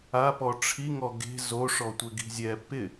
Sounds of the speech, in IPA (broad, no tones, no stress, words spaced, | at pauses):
apɔ ʈ͡ʂʰi ŋɔɡe̤ zoʂɔtʷɪɡi̤ zʲɛ pɪ